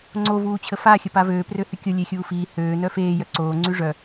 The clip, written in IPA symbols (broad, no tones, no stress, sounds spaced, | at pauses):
ŋ͡ǀ o v uː t͡ɕʰ ə f a xʲ ə p a v øː p r ø h y kʲ o lʲ e xʲ uː f iː h øː n œ f eː j œ ǀ oː ŋ͡ǀ y ʐ œ